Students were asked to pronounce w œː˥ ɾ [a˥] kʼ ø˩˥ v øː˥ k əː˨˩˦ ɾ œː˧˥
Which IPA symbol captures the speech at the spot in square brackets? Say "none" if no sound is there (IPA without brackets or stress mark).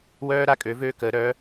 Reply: a˥